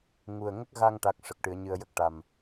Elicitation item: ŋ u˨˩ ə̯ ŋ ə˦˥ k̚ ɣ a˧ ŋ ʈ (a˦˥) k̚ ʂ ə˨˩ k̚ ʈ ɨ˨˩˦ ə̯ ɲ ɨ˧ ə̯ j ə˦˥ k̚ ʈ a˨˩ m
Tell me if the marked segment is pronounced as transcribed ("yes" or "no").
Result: yes